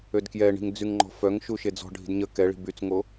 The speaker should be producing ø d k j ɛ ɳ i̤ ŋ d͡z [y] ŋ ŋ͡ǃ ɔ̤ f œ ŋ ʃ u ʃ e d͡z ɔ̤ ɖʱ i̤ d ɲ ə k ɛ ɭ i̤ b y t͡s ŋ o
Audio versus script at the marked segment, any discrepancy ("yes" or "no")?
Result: no